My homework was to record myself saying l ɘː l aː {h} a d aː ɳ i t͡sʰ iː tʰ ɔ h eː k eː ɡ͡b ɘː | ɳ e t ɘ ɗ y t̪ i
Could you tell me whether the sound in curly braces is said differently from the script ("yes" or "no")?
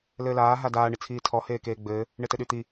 yes